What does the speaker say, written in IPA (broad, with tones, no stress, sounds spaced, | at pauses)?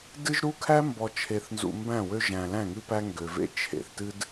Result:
d ɨ˦ ʒ ɾ u˦ kʰ æ˦ m b ɔ˨ t͡ʃʰ e˨ θ n z ṵ˨ m b æ̃˦˨ w ø˦ ʒ æ̃˨ l æ̃˦˨ ŋ ɨ˦ p æ˦ ŋ ɡ ø˨ v ḛ˦ t͡ʃʰ ḛ˨ θ t ɨ˦ d